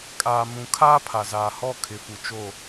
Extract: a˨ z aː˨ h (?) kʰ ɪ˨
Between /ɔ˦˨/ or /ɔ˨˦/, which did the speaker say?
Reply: ɔ˦˨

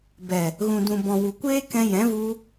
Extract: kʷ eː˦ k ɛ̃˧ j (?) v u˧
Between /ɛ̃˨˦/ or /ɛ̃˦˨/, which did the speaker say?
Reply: ɛ̃˨˦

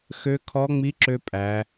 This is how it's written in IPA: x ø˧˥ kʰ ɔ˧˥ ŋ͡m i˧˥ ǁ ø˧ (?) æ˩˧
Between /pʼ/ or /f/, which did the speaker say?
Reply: pʼ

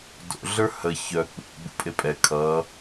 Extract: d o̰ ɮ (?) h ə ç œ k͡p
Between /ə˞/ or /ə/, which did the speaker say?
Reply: ə˞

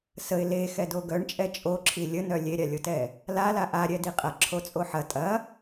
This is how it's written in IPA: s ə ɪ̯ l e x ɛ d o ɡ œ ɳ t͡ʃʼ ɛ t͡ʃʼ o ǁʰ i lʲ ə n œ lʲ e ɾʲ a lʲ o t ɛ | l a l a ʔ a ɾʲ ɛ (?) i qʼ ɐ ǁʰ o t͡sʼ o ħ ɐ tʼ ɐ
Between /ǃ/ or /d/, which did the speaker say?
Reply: d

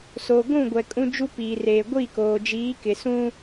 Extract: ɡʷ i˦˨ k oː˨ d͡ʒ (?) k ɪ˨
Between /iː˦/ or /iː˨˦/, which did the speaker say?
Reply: iː˨˦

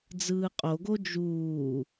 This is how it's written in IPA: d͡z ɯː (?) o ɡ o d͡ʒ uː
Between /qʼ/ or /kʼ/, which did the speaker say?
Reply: qʼ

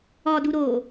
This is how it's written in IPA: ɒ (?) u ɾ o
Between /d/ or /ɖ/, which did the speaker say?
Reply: d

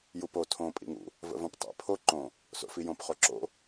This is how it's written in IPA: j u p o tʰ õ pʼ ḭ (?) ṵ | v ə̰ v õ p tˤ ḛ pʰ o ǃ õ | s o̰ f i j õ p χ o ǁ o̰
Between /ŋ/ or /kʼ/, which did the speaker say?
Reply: ŋ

